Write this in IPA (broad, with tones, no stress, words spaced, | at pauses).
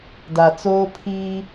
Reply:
da˨t͡soː˦ pʰiː˦